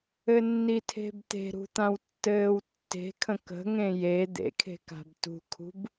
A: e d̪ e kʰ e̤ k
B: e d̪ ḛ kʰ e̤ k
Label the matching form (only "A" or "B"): B